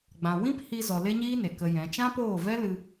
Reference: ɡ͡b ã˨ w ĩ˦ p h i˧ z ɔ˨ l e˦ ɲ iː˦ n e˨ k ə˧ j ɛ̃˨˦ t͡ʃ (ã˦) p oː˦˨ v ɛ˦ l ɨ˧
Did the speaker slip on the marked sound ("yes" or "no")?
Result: no